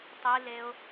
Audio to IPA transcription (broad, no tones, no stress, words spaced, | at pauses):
tˤileʊ̯